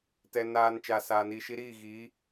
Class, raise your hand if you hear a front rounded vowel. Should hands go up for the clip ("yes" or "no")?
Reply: no